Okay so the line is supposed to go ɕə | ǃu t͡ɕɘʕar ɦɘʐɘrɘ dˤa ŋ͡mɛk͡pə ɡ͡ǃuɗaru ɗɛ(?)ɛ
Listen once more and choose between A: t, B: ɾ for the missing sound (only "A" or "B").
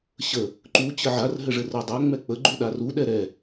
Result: B